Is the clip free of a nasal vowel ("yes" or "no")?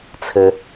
yes